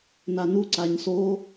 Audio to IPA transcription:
nanu ǀaɲso

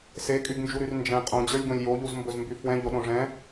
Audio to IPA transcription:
sekʼyɡnd͡ʒuɾyr nd͡ʒɛ̃ qʼõd͡ʑə˞lʲɡõlʲ joʎuzmbɵzmby fwɛ̃ʎoɗõ ʐɛ̃

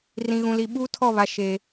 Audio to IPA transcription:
rĩ˨ɣũ˨li˨ ɓuː˦tʰɔ˦˨βa˨ ʃe˨

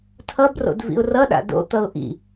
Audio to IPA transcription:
tʰʌbro̰d vḭʊ̯rʌɗa̰ do̰t̪ʌʊ̯ ʔḭ

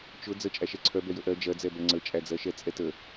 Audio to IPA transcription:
t͡ʃʊ d͡zə t͡ʃʼæʃɛǀʰœ bɛjəʔɜ d͡ʒɜd͡zɛbɛ ŋ͡ǀət͡ʃʼæd͡zɜʃɛ t͡sʼɛtə

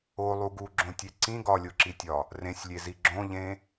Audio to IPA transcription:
olˠu ɡuɡ͡ǁõtʲe ǀĩ ɡɒlʲoǁitʲɒ | rẽsʲlʲezi ɡ͡ǁõʎẽ

